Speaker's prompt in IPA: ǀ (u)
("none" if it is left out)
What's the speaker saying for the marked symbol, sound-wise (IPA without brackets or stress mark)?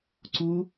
u